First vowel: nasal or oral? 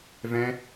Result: nasal